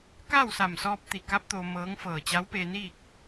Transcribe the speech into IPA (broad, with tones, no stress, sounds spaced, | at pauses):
k a˥˨ w s a˧˩ m s ɔː˧ p̚ t̪ i˧˩ k a˧˥ p̚ t̪ o˧ m ɤː˧˥ ŋ f ɤː˧˩ t͡ɕ a˧˥ w p eː˧ n iː˥˨ k̚